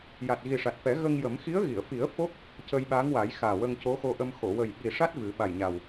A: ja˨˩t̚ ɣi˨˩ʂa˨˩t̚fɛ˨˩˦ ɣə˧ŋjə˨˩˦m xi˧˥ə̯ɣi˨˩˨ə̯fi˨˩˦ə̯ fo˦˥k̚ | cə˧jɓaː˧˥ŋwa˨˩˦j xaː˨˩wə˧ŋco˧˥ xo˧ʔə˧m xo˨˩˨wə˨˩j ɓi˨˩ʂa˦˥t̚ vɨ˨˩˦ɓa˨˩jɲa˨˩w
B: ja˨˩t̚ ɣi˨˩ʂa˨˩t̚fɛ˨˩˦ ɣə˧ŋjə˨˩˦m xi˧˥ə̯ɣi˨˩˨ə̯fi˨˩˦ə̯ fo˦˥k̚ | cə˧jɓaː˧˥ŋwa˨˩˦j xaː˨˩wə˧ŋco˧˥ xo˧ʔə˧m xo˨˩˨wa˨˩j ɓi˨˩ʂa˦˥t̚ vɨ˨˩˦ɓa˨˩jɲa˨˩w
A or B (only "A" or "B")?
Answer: A